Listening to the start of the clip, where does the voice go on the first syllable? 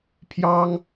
high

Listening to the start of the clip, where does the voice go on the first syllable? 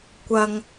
low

